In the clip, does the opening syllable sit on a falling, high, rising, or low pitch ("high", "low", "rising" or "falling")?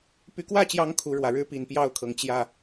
rising